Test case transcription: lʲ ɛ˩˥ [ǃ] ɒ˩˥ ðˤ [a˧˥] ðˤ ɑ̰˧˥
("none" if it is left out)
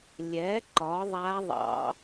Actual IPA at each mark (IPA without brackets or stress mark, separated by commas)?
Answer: ǃ, a˧˥